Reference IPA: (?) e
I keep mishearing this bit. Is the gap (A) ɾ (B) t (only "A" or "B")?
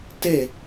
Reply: B